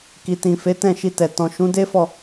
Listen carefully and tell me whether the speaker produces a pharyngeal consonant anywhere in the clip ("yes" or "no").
no